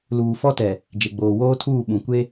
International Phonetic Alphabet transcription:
l uː˨ f ɔ˦ t ɛ˨ | d͡ʒ e˨ ɡ͡b oː˨ w oː˦ tʰ uː˦˨ ɓ ũ˨ kʷ e˦

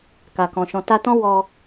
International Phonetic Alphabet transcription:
k a˨ k ɔ̃˨ ʃ ɔ̃˨ t a˧ t ɔ̃˦ w ɔ˧

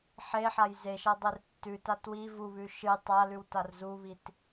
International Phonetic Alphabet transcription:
ħ e ħ a j z e ʃ ɐ dˤ e r tː ʉ t a t w i v u β ʉ ʃ ɨ tˤ a l ʉ w t a r z u β i t

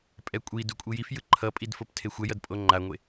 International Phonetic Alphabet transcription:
pʼ ɛ kʷʼ i d u kʷʼ i j i f j ɯ ǃʰ ʌ pʼ i d f o p tʰ e xʷ ɛ j ʌ d pʼ o ŋ͡ǃ a ŋʷ e

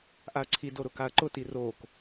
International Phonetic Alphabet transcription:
ʔ a ɐ̯ ǀʰ i d o ɾ ʊ k a ɐ̯ ǃ ʊ t i r oː k

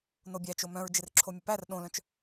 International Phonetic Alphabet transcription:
n o bʲ æ t͡ʃ o m œ̃ ɹ d͡ʒ ɪ r ǁʰ o mʲ ə p æ r ɗ õ l œ̃ t͡ʃ

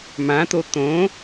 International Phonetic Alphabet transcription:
m ã t̪ o t̪ õ

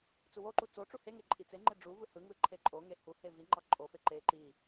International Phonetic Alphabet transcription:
t͡s u w o ǃ u t͡s o ʈ͡ʂ u h e ŋ e ǃʼ i t͡s e ŋ͡ǃ e ɖ͡ʐ u v ɯ h ɯ ŋ ɯ ǃʰ e ǃʼ o ŋ e h u h e v i ŋ͡ǃ ɑ ǃʼ o f e ǃ e ǃ i

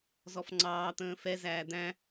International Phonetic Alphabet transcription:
z ɔ f ŋ͡ǀ ɑː t̪ ə̃ː f ɛ z æː d̪ æ̃

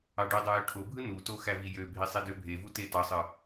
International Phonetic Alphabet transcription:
ɑ ɖ y dˤ ɯ j ø ʈʰ o bʱ ɯ n u t o x æ v i j ø bʱ i sˤ i d ø bʱ e v u t e t ɑ sˤ ɯ

